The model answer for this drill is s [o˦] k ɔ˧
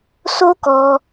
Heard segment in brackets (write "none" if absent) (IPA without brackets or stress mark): o˦